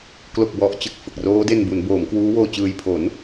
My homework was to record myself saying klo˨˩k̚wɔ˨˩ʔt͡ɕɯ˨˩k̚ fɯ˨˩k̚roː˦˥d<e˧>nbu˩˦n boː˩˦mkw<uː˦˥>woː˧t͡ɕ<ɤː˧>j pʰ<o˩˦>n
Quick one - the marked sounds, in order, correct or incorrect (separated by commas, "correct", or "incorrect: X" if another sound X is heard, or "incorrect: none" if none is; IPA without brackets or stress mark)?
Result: correct, correct, incorrect: ɯː˧, correct